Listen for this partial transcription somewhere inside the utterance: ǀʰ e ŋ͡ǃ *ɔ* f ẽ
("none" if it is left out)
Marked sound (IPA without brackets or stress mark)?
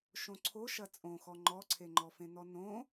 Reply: ɔ